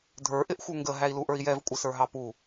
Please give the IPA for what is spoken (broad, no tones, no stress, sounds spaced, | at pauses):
dʱ ə˞ ʔ ɪ ʔ xʷ ə˞ ŋ ɡ ə ɦ æ i̯ l u ʔ ə˞ i̯ j ɛ v kʷʼ ɪ s ə˞ ɦ ɑ p u